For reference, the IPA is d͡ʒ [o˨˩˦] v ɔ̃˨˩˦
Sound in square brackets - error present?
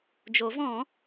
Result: no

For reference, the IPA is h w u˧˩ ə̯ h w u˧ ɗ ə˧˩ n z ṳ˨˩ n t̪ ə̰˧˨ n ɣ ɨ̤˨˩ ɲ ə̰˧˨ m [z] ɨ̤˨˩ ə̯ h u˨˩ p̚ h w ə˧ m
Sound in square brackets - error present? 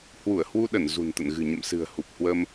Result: yes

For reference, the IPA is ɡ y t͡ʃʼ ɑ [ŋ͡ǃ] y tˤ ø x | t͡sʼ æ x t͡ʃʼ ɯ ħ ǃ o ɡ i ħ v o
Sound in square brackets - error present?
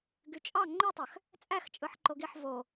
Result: no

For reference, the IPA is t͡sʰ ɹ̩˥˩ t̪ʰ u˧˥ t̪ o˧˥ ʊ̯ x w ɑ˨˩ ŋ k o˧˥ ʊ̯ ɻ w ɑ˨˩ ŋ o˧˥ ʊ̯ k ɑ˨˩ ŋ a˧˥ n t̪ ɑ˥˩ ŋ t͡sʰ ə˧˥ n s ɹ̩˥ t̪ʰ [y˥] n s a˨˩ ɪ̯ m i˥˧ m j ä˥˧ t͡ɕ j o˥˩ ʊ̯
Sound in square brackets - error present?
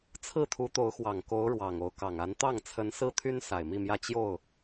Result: no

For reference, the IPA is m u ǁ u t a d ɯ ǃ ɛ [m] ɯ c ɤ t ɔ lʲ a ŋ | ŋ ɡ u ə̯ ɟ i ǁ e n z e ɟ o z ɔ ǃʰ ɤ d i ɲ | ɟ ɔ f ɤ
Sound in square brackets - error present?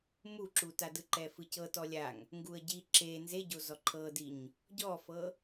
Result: yes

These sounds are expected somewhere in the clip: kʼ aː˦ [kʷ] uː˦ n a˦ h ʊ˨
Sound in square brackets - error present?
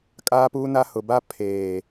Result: yes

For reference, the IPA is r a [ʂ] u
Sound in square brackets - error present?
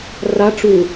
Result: yes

